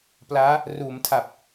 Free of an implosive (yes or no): yes